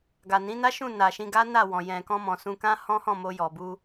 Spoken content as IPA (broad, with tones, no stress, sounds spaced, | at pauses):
ɡ a˨ n ĩ˨˦ n a˦ ʃ ũ˦˨ n a˨ ʃ ĩ˧ ɡ a˦ n a˦˨ w ɔ̃˨ j ɛ̃˨ k ɔ̃˧ m ɔ̃˨ s ũ˧ k ã˦ h ɔ̃˦ h ɔ̃˦˨ m o˧ j ɔ˨ b u˧